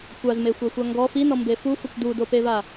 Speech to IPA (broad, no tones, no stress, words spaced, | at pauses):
kʷazmexʷæxʷa ŋɡɔ finɔmbe fufɵkʷ dudopeva